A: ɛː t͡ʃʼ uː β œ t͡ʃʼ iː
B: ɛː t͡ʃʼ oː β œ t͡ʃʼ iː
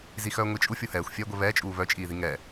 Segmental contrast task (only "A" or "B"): A